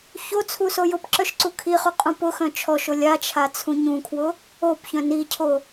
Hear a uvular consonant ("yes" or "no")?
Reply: yes